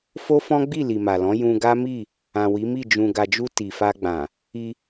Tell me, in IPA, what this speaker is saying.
f o˦ f ɔ̃˦ ɡ͡b i˦˨ l i˨ m a˨ l ɔ̃˨˦ j ũ˧ ɡ a˦ m i˦˨ | ã˨ w i˨˦ m i˦˨ d͡ʒ ũ˧ ɡ a˨ d͡ʒ u˧ t i˨ f a˧ ɡ͡b ã˨ | i˧

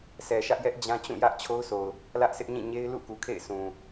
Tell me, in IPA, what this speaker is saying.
s ɛ˨ ʃ ä˦ ʔ j ɛ˦ ʔ d͡ʑ ã˦ t͡ɕ ũ˦˨ j ä˦ ʔ t͡ɕʰ o˦ ʊ̯ s o˨ ʊ̯ | l ä˦ ʔ s ɪ˦ ʔ ɲ ĩ˦˨ ɲ e˦ ɪ̯ l ṵ˦˨ k u˨ kʰ ḛ˦˨ ɪ̯ s ũ˨

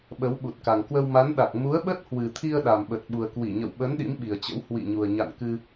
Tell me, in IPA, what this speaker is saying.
ɓ ə˨˦ w ɓ u˨˩ t̚ k a˨˩ ŋ k w ə˧ w m a˨˦ n ɗ a˨˩ k̚ m u˨˦ ə̯ ɓ ə˦˥ t̚ h w ɨ˨˩ t̪ʰ i˧ ə̯ ɗ a˨˩ m ɓ ə˨˩ t̚ ɓ u˨˩ ə̯ k w i˧˩ ɲ ə̰˧˨ w ɓ ə˨˦ n ɗ ḭ˧˥ m ɓ i˨˩ ə̯ t͡ɕ ə̰˧˥ w h w ḭ˧˨ ɲ u˨˩ ə̯ ɲ a̰˧˨ n k ɨ˧

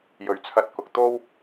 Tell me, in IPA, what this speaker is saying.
j ɵ˨ ɥ t͡sʰ ɐ˧ t̚ k ʊ˨ k̚ t̪ o˥ w

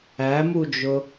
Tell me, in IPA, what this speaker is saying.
æ m u d͡ʒ ʊ

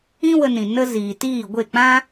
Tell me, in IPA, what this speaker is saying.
ĩ˦ w ə˧ n ĩ˨ n ə˦ z iː˨ t iː˦˨ ɡʷ e˦˨ k͡p ã˦

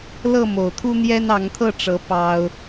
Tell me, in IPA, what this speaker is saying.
l ɤ˥˨ m o˨˩ ʊ̯ t̪ʰ u˦ n̪ j ɛ˦ n ɑ˨˦ ŋ t̪ʰ ɤ˥˨ ʈ͡ʂ ɤ˨˦ p ɑ˦ ʊ̯

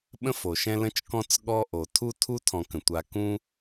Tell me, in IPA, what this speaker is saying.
ɓ ə̃˥ f o˩ ʃ ɛ̃˦ l ə̃˥ t͡ʃ k ɔ̃˥ t͡s ɠ ɔ˦ ʔ o˩ tʰ u˦ tʰ u˥ tʰ ɔ̃˨ k ə̃˩ tʷ a˨ k ũ˦

